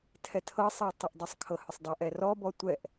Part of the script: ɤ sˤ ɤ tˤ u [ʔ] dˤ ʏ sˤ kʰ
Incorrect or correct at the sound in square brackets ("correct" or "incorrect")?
correct